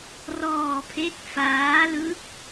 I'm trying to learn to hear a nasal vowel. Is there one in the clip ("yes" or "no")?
no